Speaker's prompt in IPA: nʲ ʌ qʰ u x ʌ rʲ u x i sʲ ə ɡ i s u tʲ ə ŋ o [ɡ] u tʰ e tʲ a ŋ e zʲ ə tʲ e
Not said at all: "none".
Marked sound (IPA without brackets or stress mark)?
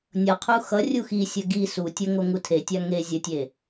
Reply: ŋ